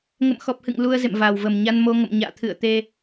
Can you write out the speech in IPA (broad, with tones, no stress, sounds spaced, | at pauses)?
ŋ ə̰˧˨ m x ɔ˨˩ p̚ h ɨ̰˧˨ ŋ l u˧ ə̯ z ḛ˧˨ m v aː˨˩ w v ə˨˩ m ɲ a˧ n m o˧ ŋ ə̰˧˨ m ɲ a̰ː˧˨ t̪ʰ ɨ̰˧˨ ə̯ t̪ e˧